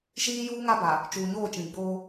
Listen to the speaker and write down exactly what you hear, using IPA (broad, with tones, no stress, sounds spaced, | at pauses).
ʃ iː˦ j uː˦ ŋ a˦ b a˨ | t͡ʃ uː˨ ɲ oː˦˨ t͡ʃ ĩ˨ ɡ͡b oː˦